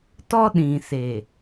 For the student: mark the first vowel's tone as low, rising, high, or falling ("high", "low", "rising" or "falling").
high